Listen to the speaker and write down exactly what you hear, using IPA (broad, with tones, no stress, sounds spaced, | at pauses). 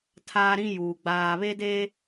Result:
tʰ aː˦ ɾ ĩ˦ j uː˨ ɡ͡b aː˨ β e˦ d e˦